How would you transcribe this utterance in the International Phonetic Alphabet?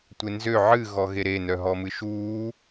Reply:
tʷ e n z ø ʕ ɨ ɣ ɔ ɣ e ɾ e n œ ɦ ɔ m ɨ ʃ uː

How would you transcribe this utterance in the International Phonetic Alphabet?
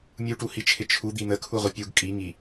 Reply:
mʲ u ʈ u h i t͡ʃʰ ɪ t͡ʃʰ u d̪ i n̪ ə kʰ u ʁʷ ɪ pʲ u ɡ kʼ i ŋ i

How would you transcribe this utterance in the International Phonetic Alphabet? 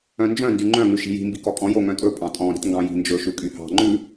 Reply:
œ̃ n d͡ʒ œ̃ n d y ŋ͡ǃ œ̃ ŋ ʉ ʃ i̤ j i̤ m b i k ɔ kʼ ɔ̃ j o ŋ œ̃ tʼ ɵ pʼ ɑ̃ tʼ ɔ̃ ɾ i̤ t ŋ ɡ ɑ̃ j i̤ n d͡ʒ ɵ ʃ ʉ kʼ y h ɑ̤ ŋ͡ǃ ʉ

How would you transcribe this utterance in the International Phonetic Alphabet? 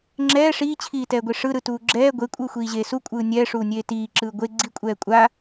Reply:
ŋ͡ǁ ɛː ʂ iː t͡ɕʰ iː t ɛː ɡʷ i ʂ ɯ ɾ ɯ t uː ɡ͡ǁ ɛː ɡʷ e kʷʼ ɯː xʷ iː ʑ eː s u kʷʼ ɯː nʲ ɛː ʂ uː nʲ eː t iː ǁ ɯː ɡʷ e ɡ͡ǀ i kʷʼ ɛː kʷʼ a

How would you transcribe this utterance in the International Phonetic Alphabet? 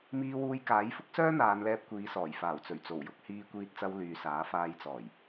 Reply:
m iː˧ w uː˧ j k aː˨˥ j f ʊ˥ k̚ s œː˥ n̪ aː˨˧ n l ɛː˧ p̚ kʷ iː˨˧ s ɔː˨˩ j f aː˨˩ w t͡s ɵ˨˩ ɥ t͡s o˨˩ w j ʊ˧ k̚ h iː˧ kʷ iː˧ t̚ t͡s ɐ˧ w l yː˨ s aː˨˥ f aː˧ j t͡s ɔː˨˩ j

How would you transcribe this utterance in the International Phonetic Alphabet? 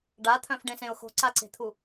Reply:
ɖ a t̪ʰ œ̃ f ɖ ẽ s ẽ ʊ̯ x o̤ ǀ a ǀ e̤ t̪ʰ u

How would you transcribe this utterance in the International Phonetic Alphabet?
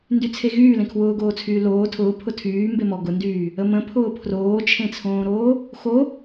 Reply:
n d y t͡sʰ e ɣ yː l ẽ kʰ w ʊː ɡ oː t͡sʰ yː l oː tʰ ʊː pʰ ʊ tʰ yː m b e m ɔ ɡ ʊ n d yː | ə m ə̃ pʰ ʊː pʰ r oː t͡ʃʰ ẽ t͡sʰ õː ɾ oː | x o

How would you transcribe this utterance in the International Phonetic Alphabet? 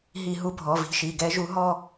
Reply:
ɦ i˧˩˧ ɦ u˨˦ bʱ ɔ˩˧˩ v i̤˨˦ ʃ i˩˧˩ ɡ ɛ˨˦ ʒ u˨˦ ɦ ɔ˥˧

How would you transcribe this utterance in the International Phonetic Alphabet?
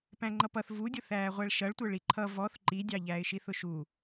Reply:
p æ̃ ŋ͡ǃ ʌ p ʌ θ v u dʲ ʊ θ æː ʁʷ æ ɭ ʃ ʌ ɭ tʷ ə˞ ɭ i ǃʰ ʌ v ɔ θ ǃ i dʲ ɑ ʎ æː ɪ̯ ʃ i θ ʊ ʃ u

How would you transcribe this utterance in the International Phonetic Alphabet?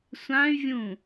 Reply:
sʷ ã y̯ vʲ ũ

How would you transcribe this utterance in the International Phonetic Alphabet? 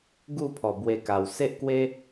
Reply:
ɡ u˥˧ pʰ ɔ˨˩ b w e˧ k a˨˩ w s e˦ ʔ k w e˦

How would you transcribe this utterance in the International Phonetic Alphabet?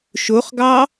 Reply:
ʃ o χ ɡ ɑ

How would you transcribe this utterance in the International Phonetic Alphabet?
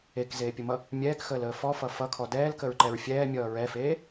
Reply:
e k z eː pʲ ə m ʌ | mʲ ɛː k x əː l əː f ɔ f ʌ f ʌ kʰ ɔ d ɛː l k ə ɹ ǃ ɛ ɹ fʲ ɛː mʲ ʌː ɹ ɛ f eː

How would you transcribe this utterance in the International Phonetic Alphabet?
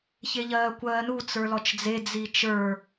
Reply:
ç e ʎ ɜː kʷ ɜː n u t͡s ə˞ l ɔ t͡ʃ d͡z e d͡z i t͡ʃ ə˞

